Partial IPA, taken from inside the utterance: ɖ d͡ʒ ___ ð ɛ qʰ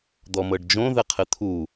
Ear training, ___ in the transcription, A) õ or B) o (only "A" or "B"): A